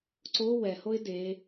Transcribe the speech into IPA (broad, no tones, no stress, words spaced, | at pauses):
ǀo wɛhoɪ̯ de